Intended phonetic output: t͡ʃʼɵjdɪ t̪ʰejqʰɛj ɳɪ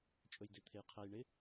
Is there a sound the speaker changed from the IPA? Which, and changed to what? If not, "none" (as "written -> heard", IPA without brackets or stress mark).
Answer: none